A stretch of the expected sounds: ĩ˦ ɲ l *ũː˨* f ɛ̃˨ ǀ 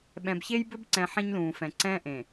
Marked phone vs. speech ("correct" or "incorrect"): correct